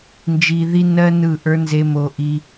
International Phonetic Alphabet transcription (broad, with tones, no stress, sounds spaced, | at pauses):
n d͡ʒ i˧ ð i˦ n ɜ˦ n ɯ˦˨ ʔ ə˞˦ n z e˧ m o˧ ʔ i˧